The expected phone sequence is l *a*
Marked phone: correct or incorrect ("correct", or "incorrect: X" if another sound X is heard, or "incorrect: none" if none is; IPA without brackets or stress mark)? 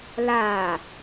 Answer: incorrect: aː